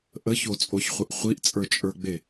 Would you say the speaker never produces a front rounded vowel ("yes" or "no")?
yes